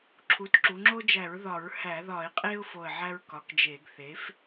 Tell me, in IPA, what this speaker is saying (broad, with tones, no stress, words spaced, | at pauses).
ǁʰu˩˥tǁu˩˧ŋ͡ǁo˦d͡ʒæ˧˩˧ɹ ðɒ˧˩˧ɹhæ˧˩˧ðɒ˧˩˧ɪ̯ qʼe˦ʊ̯ fo˧˩ə̯ʕæ˦ɹ kɒ˩˥kd͡ʒe˧˩˧ɡ θe˩˥f